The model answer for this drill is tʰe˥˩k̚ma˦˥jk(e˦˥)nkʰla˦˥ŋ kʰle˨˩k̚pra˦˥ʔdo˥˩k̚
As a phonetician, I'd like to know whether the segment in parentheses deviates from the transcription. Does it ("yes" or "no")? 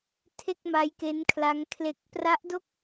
no